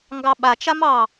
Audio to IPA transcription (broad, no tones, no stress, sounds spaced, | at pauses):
ŋ ɡ ɑ ɓ a t͡ʃ a m ɑ